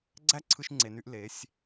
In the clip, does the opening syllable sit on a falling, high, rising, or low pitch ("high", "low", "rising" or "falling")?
high